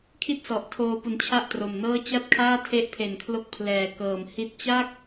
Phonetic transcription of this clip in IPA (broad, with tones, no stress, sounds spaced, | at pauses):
kʰ i˥˩ t̚ s ɔ˨˩ ʔ tʰ oː˧ p u˨˩ n t͡ɕʰ a˥˩ ʔ t r o˨˩ m n ɤː˥˩ t͡ɕ a˥˩ t̚ kʰ aː˥˩ tʰ e˦˥ ʔ pʰ e˨˩ n kʰ l o˦˥ k̚ pʰ l ɛː˨˩ k ɤː˨˩ m h i˦˥ t̚ t͡ɕ a˥˩ k̚